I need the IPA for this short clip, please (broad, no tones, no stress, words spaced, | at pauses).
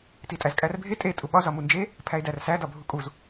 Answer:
titʼæzkʼærbʱe tʼe tʼuɓɒ zɒmund͡ʒe | pʰæe̯dærsæ dɒbʱukʼuz